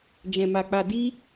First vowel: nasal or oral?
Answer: nasal